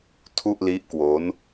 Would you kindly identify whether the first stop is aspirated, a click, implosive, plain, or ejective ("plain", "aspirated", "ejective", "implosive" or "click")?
aspirated